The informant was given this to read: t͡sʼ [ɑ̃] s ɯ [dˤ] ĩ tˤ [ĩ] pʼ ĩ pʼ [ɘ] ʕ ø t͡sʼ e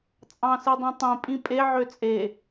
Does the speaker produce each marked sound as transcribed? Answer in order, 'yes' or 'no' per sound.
yes, yes, yes, no

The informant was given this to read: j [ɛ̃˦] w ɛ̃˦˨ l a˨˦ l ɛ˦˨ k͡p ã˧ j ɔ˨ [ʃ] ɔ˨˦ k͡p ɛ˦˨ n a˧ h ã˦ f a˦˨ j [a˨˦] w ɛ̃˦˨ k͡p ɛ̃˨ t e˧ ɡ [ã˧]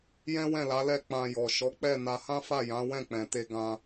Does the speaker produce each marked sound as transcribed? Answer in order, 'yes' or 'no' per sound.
yes, yes, no, yes

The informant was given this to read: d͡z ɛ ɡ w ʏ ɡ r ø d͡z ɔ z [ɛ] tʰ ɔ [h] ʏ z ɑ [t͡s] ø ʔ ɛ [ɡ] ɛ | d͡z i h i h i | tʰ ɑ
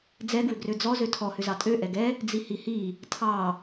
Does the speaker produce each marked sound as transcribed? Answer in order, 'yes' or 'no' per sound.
no, yes, no, yes

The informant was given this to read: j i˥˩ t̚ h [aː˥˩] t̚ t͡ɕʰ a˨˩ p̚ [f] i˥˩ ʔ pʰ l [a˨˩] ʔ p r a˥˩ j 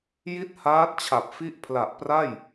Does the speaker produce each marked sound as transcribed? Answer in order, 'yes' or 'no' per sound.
no, yes, yes

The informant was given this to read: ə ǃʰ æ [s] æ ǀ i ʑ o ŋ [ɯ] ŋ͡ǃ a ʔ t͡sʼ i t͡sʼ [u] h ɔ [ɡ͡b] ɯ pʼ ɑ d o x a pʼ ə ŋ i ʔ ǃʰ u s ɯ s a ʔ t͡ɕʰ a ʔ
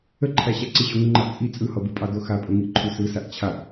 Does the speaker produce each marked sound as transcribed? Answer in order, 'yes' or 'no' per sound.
no, no, no, no

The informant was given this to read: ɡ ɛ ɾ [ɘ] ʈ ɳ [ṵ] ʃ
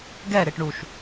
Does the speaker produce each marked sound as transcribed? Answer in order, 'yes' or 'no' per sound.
no, no

